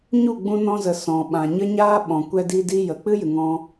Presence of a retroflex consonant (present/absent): absent